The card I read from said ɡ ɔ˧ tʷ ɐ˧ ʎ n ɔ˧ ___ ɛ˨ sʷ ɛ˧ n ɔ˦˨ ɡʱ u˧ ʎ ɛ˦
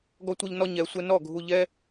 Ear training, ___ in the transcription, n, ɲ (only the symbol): ɲ